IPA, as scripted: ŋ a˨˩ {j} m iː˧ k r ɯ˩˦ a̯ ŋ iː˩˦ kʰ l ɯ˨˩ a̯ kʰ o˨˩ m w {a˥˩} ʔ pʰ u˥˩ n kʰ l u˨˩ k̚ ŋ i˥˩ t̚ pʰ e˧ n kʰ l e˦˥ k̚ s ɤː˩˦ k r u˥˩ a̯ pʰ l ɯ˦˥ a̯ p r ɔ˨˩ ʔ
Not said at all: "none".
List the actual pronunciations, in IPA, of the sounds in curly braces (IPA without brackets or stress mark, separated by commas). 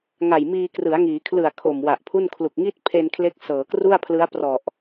j, a˨˩